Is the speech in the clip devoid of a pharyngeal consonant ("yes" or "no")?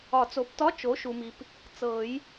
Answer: yes